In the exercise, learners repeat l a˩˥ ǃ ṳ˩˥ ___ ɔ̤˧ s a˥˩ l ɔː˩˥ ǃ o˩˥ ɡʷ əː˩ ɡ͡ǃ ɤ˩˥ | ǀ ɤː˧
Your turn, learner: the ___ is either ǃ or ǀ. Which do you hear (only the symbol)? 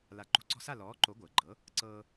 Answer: ǀ